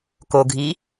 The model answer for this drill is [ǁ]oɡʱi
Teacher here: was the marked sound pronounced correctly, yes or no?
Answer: no